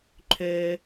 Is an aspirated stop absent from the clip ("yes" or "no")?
no